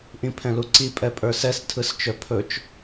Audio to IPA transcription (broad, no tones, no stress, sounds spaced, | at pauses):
ʔ ĩ pʰ ɛ̃ l u ǀ i pʼ ɛ pʼ ə˞ s ɛ s tʰ ɯ s t͡ʃ œ pʰ ɵ t͡ʃ